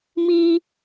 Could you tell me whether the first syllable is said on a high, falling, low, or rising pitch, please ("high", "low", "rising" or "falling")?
high